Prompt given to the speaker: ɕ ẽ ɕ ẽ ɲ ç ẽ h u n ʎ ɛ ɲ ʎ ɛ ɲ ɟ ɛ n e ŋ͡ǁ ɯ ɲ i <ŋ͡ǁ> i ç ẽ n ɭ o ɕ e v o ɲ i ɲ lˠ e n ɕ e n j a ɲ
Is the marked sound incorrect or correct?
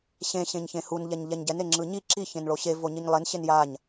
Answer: incorrect